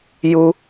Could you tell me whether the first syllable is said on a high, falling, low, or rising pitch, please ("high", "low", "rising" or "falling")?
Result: high